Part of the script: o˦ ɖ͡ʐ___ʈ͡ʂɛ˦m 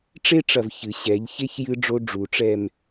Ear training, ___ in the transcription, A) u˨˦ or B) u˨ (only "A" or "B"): A